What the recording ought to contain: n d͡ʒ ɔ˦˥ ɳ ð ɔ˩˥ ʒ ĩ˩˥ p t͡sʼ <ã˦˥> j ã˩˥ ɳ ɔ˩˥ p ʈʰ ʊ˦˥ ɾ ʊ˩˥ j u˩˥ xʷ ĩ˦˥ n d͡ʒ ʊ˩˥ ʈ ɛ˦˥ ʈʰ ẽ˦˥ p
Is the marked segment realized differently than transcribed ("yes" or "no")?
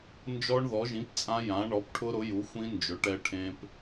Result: no